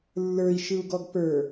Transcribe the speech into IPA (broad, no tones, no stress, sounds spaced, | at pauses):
lː ə˞ i̯ ʃ ɯ u̯ ɡ ɔ ɡ p ə˞